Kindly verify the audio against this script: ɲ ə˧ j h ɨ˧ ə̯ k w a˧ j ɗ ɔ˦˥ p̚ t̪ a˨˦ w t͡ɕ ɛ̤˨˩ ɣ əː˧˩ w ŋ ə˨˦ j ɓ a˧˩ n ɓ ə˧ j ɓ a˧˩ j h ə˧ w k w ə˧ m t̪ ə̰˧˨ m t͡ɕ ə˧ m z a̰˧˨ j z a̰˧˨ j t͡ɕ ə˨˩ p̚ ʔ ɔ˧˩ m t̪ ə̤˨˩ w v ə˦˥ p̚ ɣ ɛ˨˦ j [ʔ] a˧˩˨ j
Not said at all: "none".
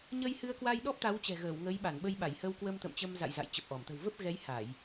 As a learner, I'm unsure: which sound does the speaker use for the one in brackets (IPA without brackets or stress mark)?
h